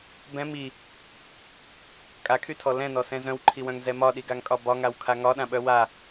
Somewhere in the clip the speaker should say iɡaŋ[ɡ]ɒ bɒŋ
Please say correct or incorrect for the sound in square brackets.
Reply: incorrect: kʼ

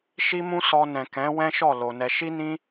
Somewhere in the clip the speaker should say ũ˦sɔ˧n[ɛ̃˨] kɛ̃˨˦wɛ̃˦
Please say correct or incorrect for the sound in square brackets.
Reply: correct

